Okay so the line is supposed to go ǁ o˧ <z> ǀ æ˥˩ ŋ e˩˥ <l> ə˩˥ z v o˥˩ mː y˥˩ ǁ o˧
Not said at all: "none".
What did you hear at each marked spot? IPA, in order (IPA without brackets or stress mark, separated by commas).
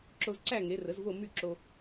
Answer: z, r